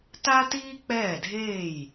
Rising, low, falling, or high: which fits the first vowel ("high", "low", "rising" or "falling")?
high